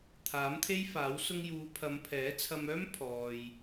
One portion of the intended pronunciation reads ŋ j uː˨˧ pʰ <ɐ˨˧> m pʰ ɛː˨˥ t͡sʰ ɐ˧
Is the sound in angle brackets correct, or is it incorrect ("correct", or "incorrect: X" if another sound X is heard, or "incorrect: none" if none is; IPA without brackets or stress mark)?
correct